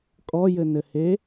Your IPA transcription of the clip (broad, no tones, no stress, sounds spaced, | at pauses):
kʼ ɔ j ɘ n ɘ h e